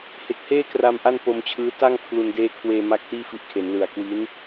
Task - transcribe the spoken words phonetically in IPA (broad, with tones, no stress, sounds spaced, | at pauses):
h e˨˩ k̚ h eː˥˩ k r a˧ m ʔ a˥˩ n p o˧ m t͡ɕʰ ɯː˦˥ t a˥˩ ŋ pʰ l u˧ n d eː˦˥ kʰ w eː˧ m a˥˩ k̚ t iː˥˩ f i˦˥ ʔ kʰ e˩˦ n l ɯ˨˩ a̯ k w i˦˥ n